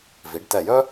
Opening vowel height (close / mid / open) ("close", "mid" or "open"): close